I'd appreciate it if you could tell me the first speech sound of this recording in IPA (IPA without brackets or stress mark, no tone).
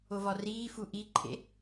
o